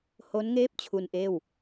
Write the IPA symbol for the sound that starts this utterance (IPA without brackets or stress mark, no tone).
h